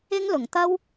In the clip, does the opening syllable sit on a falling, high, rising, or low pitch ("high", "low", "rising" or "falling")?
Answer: high